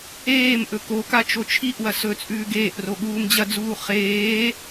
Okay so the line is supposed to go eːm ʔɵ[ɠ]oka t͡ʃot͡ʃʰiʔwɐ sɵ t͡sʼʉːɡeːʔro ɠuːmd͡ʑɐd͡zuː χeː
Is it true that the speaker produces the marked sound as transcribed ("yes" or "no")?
no